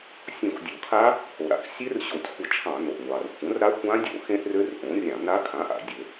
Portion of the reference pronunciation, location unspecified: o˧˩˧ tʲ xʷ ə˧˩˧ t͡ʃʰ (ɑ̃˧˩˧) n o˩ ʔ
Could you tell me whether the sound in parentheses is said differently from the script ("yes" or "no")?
no